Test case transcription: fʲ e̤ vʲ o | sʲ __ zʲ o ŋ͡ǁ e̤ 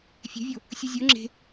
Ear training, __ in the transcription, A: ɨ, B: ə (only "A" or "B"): A